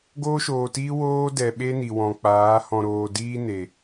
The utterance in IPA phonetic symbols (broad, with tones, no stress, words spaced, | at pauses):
ɡoː˦ʃoː˨tiː˦ woː˦ dɛ˨ ɓe˦ni˨wɔ̃˨k͡paː˨˦ hɔ̃˧ɾoː˧diː˦ne˨